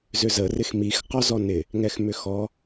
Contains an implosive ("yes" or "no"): no